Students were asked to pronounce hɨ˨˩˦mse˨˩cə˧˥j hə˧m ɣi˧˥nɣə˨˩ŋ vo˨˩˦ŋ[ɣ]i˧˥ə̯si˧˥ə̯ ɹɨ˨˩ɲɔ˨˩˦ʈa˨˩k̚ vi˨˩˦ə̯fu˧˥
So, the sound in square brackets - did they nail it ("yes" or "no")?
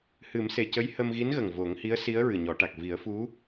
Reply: no